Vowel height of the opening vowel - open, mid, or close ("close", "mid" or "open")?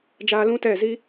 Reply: open